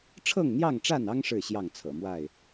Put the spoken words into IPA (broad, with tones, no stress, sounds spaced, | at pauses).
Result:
ʈ͡ʂʰ ɤ˥˨ ŋ n̪ j ɑ˥˨ ŋ ʈ͡ʂ a˥˨ n ɑ˦ ŋ ʂ ɻ̩˥˨ ɕ j ɑ˥˨ ŋ t͡sʰ ɤ̰˨˩ m w a˥˨ ɪ̯